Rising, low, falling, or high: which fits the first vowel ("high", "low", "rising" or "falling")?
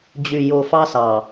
low